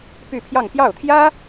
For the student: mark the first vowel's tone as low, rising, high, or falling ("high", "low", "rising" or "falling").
falling